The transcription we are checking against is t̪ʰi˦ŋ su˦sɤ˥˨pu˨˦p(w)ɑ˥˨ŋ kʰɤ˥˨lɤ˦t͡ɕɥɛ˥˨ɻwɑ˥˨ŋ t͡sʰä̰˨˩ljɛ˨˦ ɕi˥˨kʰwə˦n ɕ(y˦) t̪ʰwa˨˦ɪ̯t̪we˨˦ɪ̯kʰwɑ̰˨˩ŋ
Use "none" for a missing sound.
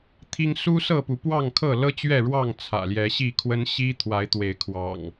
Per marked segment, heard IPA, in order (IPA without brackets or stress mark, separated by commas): w, i˦